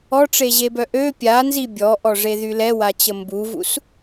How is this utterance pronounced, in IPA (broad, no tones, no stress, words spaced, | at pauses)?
ɔʈ͡ʂeʑebœ ʔø pʲanzi bʲɔʔɔʐeðy lɛwat͡ɕə mbuvṵs